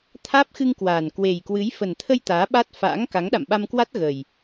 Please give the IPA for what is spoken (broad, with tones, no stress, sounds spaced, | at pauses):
t̪ʰ aː˦˥ p̚ x ɨ˧ ŋ k w aː˨˩ n k w e˨˩ j k w ɨ˨˦ j f ə˨˩ n t̪ʰ ə˧ j t̪ aː˨˦ ɓ a˦˥ t̚ f a̰ː˧˥ ŋ k a˨˦ ŋ ɗ a̰˧˨ m ɓ a˧ m k w a˦˥ t̚ ɣ ə˨˩ j